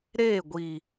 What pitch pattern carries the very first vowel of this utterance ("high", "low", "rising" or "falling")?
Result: falling